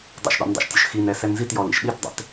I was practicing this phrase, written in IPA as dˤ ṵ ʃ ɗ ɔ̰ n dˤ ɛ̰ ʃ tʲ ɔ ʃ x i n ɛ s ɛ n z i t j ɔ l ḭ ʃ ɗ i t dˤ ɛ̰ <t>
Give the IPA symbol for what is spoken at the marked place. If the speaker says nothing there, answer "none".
t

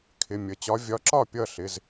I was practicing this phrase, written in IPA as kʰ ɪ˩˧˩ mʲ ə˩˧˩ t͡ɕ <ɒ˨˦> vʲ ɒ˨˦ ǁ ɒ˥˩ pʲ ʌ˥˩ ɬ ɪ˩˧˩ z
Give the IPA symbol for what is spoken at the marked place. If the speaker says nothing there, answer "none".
ɒ˨˦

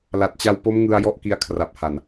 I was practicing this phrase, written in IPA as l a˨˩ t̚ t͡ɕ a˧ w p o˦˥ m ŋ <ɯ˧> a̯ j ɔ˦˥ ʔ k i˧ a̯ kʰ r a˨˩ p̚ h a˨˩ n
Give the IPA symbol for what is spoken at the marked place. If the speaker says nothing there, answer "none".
ɯ˧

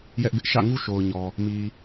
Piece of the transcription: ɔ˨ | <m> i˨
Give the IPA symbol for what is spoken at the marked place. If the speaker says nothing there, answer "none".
m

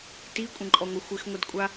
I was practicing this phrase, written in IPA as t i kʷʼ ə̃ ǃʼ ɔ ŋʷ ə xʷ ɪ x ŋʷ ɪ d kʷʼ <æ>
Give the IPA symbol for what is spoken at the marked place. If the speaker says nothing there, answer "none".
a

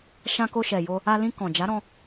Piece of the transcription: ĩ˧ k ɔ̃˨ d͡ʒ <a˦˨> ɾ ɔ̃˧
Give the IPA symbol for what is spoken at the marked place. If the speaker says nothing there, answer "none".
a˨˦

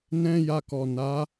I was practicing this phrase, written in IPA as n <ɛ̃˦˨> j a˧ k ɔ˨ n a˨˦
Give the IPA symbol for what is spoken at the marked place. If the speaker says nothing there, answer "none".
ɛ̃˦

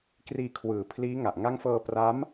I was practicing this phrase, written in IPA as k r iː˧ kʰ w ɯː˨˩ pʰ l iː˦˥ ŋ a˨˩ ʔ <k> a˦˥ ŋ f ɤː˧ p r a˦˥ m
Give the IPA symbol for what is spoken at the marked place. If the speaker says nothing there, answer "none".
ŋ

